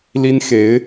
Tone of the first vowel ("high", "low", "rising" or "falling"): high